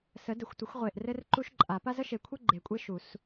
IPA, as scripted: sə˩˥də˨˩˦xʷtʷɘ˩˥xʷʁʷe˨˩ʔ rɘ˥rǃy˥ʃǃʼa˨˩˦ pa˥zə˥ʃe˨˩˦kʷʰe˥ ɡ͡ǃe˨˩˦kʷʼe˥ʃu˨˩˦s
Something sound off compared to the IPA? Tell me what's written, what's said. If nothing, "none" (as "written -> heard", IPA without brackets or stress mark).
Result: y˥ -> u˥